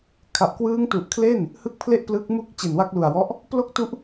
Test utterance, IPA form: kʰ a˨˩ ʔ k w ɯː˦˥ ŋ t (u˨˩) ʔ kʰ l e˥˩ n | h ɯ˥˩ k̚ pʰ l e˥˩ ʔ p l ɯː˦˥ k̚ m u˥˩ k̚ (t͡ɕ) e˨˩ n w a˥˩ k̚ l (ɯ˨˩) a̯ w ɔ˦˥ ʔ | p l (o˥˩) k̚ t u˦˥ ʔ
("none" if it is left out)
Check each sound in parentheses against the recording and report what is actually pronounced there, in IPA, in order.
u˨˩, t͡ɕ, u˨˩, o˥˩

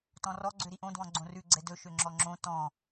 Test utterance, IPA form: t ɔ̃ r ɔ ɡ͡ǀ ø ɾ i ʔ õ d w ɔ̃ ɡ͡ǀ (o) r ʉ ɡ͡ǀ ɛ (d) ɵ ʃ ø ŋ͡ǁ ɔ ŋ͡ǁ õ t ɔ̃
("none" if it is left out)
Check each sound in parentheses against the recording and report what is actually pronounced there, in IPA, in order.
õ, d

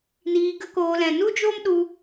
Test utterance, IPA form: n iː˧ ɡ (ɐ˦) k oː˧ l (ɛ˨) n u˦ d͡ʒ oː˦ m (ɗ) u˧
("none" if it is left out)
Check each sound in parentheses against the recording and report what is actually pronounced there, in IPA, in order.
ə˦, ɛ̃˨, ɗ

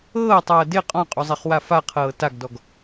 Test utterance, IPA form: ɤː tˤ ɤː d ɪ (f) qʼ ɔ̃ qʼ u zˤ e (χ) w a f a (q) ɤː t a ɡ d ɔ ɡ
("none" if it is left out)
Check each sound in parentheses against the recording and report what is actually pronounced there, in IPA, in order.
none, χ, qʰ

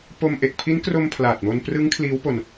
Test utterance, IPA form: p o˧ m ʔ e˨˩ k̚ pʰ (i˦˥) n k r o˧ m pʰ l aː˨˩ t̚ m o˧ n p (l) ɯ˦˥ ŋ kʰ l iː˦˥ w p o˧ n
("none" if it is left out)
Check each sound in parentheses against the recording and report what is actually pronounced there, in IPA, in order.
i˦˥, r

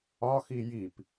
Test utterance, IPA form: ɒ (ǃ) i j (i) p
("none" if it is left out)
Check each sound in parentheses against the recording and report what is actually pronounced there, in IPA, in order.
x, i

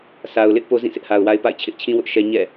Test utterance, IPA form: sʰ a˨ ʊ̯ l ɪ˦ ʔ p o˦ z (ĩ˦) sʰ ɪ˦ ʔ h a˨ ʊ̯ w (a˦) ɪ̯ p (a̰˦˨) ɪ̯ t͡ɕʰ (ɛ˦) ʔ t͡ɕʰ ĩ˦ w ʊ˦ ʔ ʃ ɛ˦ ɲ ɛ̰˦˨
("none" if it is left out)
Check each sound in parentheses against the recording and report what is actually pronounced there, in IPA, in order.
ĩ˦˨, a˦, a̰˦˨, ɪ˦

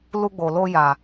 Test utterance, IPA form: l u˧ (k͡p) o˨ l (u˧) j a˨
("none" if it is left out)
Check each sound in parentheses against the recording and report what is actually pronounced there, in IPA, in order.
ɡ͡b, o˧

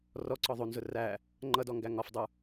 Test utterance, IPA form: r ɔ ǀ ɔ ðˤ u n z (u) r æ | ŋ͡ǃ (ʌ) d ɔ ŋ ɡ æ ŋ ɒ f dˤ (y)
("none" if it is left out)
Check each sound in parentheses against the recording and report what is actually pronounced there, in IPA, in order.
ʊ, ʌ, u

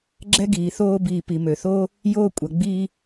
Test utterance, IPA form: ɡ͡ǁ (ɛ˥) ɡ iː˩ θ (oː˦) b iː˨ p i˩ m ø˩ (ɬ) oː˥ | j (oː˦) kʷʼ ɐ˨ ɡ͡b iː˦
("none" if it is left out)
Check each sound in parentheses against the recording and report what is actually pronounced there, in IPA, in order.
ɛ˥, oː˦, θ, oː˦

